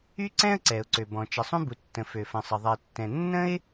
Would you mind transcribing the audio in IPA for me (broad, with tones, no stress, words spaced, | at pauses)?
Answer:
y˥ǀɛ̃˥ə̯ ǀɛ˩ʊ̯ǀø˩bɔ̃˩ t͡ʃə˩sˤũ˥bu˩tːə̃˩ fø˩fə̃˩sˤə˩ ðˤɛ˩tːɛ̃˩ nːə̃˥ɪ̯